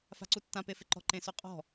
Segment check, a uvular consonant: present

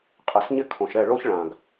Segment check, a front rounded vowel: absent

